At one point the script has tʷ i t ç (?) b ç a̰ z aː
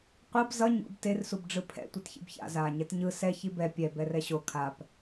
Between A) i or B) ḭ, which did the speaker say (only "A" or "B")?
B